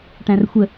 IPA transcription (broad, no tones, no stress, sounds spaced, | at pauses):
ʈ æ̃ r xʷ ə